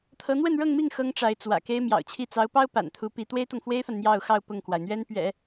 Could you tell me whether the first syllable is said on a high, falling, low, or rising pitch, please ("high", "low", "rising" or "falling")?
rising